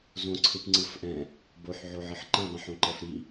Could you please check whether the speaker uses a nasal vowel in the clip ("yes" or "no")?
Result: yes